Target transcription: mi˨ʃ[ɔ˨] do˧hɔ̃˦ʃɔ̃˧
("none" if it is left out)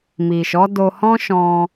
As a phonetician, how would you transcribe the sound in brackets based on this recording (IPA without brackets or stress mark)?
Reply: ɔ˨˦